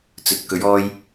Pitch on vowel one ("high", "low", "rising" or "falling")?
low